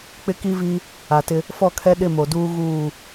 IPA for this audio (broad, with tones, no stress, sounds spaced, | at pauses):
k͡p ɪ˦ k i˦ v i˦ | a˨ t ɪ˦ | f ɔ˦˨ kʰ ɛ˦ ɗ ɪ˦˨ m o˨ d uː˦ ɣ uː˦˨